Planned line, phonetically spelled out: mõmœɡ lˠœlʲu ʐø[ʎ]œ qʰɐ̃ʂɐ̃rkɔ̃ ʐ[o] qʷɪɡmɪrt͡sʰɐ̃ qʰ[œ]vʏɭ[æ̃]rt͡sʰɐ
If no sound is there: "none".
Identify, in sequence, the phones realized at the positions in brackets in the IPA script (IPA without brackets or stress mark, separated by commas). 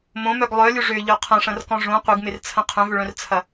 ʎ, õ, œ̃, œ̃